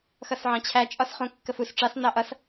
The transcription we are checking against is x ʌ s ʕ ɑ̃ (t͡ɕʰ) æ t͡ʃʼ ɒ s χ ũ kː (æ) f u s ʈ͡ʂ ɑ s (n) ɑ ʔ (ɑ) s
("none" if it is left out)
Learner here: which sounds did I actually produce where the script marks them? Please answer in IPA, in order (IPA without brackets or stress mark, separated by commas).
t͡ɕʰ, ə, n, ʌ